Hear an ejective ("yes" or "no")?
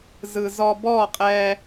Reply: yes